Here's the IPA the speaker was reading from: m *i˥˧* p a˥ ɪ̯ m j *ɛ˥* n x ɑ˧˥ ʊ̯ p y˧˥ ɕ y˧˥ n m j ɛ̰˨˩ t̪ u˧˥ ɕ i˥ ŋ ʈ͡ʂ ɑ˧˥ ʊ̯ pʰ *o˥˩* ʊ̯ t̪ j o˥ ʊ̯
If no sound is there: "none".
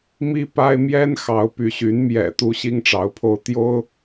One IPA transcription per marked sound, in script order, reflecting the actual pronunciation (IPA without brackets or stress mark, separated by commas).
i˥, ɛ˥, o˥˩